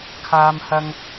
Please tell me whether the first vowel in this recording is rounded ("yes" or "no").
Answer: no